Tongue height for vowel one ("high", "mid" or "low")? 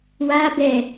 low